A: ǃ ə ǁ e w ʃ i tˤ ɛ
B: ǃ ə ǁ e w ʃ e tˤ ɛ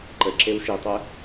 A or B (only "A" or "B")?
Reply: A